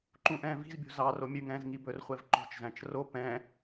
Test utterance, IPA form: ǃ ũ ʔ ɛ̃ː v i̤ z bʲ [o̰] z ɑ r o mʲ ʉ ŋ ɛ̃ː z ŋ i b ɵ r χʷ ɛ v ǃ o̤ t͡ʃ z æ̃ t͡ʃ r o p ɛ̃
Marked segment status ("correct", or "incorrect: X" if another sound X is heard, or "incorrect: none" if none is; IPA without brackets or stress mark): incorrect: o̤